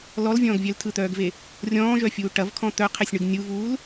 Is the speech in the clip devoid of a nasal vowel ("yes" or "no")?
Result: no